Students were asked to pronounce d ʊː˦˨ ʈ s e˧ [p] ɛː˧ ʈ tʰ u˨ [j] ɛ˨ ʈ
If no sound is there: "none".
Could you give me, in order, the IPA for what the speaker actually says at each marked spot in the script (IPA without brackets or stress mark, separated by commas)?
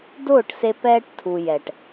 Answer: p, j